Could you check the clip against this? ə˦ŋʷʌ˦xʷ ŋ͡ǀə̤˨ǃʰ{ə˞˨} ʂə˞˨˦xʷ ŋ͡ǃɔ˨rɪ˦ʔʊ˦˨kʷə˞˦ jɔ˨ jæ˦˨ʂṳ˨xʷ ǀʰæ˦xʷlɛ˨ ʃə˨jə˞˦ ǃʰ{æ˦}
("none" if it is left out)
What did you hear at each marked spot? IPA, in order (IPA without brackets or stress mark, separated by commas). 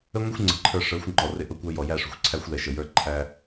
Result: ə˞˨, æ˦